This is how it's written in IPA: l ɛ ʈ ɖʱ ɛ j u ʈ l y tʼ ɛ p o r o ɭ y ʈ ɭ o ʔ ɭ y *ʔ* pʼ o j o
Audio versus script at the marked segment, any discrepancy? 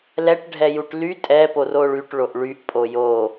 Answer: no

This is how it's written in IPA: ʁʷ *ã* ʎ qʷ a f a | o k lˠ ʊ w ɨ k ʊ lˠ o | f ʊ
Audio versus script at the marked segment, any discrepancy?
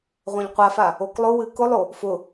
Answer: no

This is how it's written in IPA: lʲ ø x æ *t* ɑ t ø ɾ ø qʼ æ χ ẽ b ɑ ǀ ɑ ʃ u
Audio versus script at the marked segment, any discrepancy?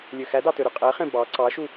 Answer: yes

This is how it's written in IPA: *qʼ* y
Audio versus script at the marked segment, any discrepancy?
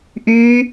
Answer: yes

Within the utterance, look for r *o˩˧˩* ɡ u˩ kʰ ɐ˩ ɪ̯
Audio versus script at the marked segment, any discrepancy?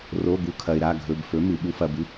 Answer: no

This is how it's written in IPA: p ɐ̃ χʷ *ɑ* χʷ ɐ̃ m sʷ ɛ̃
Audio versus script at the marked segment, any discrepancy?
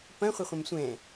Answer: yes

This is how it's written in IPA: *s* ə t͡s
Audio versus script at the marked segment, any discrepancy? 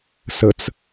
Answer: no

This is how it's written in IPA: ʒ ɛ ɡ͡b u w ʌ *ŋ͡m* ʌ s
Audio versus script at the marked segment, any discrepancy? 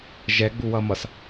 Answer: yes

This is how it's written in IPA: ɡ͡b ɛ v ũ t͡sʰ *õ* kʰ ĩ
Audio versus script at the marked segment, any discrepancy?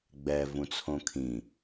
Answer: no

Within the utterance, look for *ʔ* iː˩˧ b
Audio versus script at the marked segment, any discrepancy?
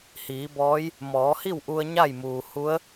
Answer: yes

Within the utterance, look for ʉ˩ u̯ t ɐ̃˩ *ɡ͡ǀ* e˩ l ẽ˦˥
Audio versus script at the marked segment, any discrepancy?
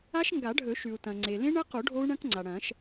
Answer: yes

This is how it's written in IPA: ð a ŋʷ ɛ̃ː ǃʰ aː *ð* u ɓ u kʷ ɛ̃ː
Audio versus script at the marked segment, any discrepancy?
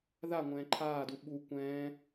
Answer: yes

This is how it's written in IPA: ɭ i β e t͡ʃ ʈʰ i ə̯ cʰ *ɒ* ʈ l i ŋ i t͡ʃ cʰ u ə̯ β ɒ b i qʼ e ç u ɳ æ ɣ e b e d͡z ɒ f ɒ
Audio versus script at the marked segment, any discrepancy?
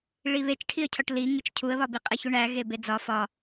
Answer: no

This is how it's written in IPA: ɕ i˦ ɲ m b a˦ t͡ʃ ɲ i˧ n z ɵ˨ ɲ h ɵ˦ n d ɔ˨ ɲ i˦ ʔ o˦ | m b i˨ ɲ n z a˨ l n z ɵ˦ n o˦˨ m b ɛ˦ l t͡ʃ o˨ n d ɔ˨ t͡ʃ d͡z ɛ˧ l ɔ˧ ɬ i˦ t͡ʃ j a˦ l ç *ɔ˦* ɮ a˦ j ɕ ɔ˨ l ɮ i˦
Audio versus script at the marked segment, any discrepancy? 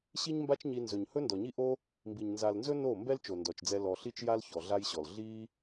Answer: yes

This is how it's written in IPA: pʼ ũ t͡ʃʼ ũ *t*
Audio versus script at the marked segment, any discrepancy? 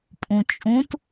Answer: no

